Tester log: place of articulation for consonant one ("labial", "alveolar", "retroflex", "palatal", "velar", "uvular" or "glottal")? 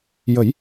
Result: palatal